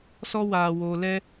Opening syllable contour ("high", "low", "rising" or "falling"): high